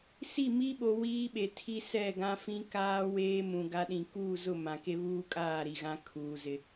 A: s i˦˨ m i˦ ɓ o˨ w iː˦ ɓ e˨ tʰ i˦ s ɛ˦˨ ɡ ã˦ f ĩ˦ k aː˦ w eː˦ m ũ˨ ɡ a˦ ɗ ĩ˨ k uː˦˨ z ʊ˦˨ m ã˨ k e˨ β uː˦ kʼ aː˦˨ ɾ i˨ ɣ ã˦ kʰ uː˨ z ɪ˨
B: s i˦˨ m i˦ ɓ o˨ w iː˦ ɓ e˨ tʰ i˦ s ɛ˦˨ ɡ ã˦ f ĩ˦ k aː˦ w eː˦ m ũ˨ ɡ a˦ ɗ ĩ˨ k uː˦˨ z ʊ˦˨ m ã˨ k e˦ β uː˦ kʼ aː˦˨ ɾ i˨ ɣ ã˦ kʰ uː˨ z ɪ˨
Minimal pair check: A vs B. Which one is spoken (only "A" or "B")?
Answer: B